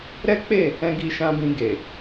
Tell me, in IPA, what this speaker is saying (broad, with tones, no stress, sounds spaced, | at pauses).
ɾ ɛ˦ k͡p e˦˨ | ɛ̃˦ ɡ i˦ ʃ ã˧ b ĩ˧ ɡ e˨